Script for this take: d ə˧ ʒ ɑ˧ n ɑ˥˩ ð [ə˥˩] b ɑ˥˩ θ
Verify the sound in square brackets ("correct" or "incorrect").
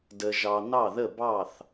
correct